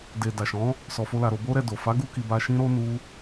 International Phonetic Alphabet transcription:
d e˨ d a˨ ʃ ɔ̃˨˦ | s ɔ˧ f o˦ l a˧ ɾ o˧ b o˦ ɾ ɛ˧ d o˨ f a˨˦ ɡ u˧ k i˨ b a˧ ʃ ĩ˦ ɾ o˦ n u˦

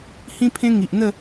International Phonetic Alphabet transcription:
h ĩ˦ pʰ ẽ˦ ŋ i˨ ʔ n̪ ə˥˧

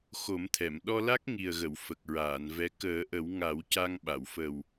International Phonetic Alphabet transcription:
x o˨˩˦ m t̪ʰ ɛ˨˩˨ m ɗ ɔ˧ l a˦˥ k̚ ŋ i˨˩ ə̯ ɣ ə˨˩˨ w f ə˨˩ k̚ ɹ aː˨˩˨ n v ɛ˧˥ k əː˨˩˦ ʔ ə˨˩˦ w ŋ a˨˩˦ w c a˧ ŋ ɓ a˨˩˨ w f ə˨˩ w

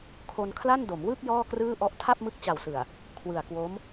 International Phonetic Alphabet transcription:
kʰ o˧ n kʰ l a˥˩ n d o˩˦ m w ɯ˥˩ k̚ j ɔː˥˩ k r ɯː˥˩ ʔ ɔ˥˩ ʔ tʰ a˥˩ p̚ m ɯ˦˥ k̚ t͡ɕ a˨˩ w s ɯ˨˩ a̯ | kʰ w ɯ˨˩ a̯ k w o˦˥ m

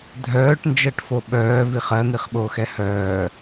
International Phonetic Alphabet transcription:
dʱ œː ʈ n d͡ʒ ɜ ʈ f o ɓ œː v i χ ɜ n̪ i χ ɓ oː x ɛ h œː

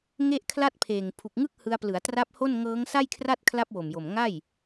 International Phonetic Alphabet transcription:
ŋ e˥˩ ʔ kʰ l a˥˩ t̚ pʰ eː˨˩ ŋ pʰ u˨˩ k̚ ŋ ɯ˦˥ k̚ h ɯ˧ a̯ p l ɯ˩˦ a̯ t r a˦˥ p̚ h o˥˩ n ŋ ɤː˦˥ ŋ s a˥˩ j kʰ r a˥˩ t̚ kʰ l a˦˥ p̚ w o˨˩ m j o˨˩ m ŋ a˥˩ j

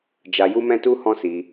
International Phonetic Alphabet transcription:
d͡ʒ a˧ j u˦ m ɛ̃˦ t u˦ h ɔ̃˦ s i˧

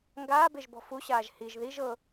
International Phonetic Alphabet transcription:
ŋ ɡ aː b e ʒ b ɔ̤ f u ɕ aː ʒ h i ʒ ð i ʒ ɤ

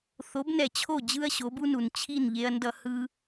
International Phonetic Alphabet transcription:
θ o˩˥ b n ɛ˩ t͡ɕʰ o˥˩ d͡ʑ ɯ˥ ɐ̯ ɕ o˩˥ b u˥ n u˩ n t͡ɕʰ i˥˩ n ʎ e˧ ɐ̯ n d ʌ˧ h ɯ˧

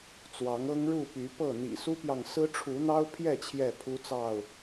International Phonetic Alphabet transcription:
t͡s w ɑ˨˦ ŋ ɤ˦ ŋ ɻ u˥˨ p y˨˦ p ɤ˥˨ n̪ ḭ˨˩ s u˦ p j ɑ˨ ŋ s ɹ̩˦ ʈ͡ʂʰ u˨˦ n̪ ɑ˦ ʊ̯ pʰ j ɛ˥˨ t͡ɕʰ j ɛ˥˨ pʰ u˦ t͡s ɑ˥˨ ʊ̯

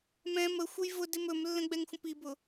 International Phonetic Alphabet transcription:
m ɛ̃ m ə xʷ ə j v ʊ d ɪ m ɵ m lː ə̃ ɡ͡b ɛ ŋ xʷ ə̃ p i b ʊ

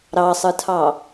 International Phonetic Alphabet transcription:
ɾ ɑ sˤ ɯ tʰ ɑ

